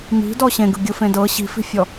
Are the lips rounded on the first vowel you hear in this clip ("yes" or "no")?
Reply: no